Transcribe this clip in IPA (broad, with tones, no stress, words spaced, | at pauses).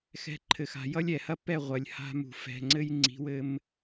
xɛ̤˧ǃʰɘ˨xa̤˨ jʌ˦lʲɛ˨hɐ˦ pɛ˦˨ ʁʷɐ˨lʲha̤˧mṳ˨ fɛ̤˨ŋ͡ǀɘ˦j ŋ͡ǀi̤˨˦wɘ˧m